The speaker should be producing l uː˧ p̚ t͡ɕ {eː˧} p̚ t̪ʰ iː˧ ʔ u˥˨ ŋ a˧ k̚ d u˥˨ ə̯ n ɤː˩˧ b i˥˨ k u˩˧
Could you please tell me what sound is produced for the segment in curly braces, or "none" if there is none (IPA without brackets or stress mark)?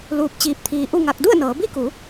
iː˧